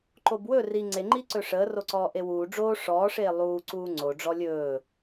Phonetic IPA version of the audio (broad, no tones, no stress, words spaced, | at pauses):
ǃobwɵ ri ŋ͡ǀeŋ͡ǃiǀɵ ʂəːroǀɔː ʔewuː ɖ͡ʐoː ʂɔːʂeː lˠuːǀuː ŋ͡ǀo ɖ͡ʐɔlʲɵː